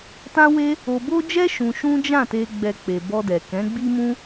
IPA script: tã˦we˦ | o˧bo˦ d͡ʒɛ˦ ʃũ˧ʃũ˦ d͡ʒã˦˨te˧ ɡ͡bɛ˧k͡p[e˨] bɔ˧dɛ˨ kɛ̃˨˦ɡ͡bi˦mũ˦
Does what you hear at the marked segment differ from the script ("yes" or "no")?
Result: no